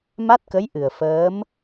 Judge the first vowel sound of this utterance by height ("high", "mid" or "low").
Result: low